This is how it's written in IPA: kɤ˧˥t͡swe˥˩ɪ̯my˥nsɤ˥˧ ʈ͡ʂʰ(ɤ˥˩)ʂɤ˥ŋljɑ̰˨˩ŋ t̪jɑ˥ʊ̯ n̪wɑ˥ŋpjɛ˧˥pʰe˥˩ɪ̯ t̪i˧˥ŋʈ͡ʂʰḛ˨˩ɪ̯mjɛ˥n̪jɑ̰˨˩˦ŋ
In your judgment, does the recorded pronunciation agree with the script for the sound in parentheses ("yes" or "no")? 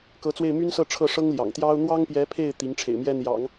yes